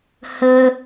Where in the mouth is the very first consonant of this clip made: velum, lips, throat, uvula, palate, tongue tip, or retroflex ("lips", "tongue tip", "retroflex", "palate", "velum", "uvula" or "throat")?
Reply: throat